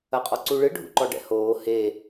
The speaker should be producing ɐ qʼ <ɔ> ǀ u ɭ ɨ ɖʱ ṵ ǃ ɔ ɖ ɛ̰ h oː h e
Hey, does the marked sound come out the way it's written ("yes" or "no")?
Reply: yes